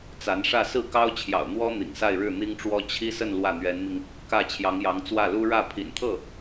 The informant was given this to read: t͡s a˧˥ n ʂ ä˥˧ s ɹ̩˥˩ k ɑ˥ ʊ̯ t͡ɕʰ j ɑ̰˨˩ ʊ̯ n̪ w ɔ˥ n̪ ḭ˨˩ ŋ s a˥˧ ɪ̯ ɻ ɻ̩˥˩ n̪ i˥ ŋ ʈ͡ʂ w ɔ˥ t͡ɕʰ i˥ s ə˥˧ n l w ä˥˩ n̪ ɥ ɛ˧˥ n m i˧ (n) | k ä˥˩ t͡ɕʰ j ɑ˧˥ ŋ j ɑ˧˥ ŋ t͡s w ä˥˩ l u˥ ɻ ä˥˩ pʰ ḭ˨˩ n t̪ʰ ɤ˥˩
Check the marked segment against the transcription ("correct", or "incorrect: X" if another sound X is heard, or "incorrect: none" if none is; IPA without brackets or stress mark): incorrect: ŋ